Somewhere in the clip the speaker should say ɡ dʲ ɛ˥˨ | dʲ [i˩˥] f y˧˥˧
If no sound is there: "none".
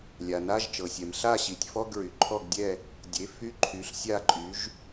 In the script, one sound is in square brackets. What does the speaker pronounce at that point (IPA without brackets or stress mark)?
e˩˥